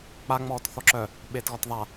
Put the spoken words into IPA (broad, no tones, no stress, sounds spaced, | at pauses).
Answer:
k͡p a ŋ͡m ɔː t θ ɔ ǁ œ | ɓ eː t ɣ ɔ t ðˤ a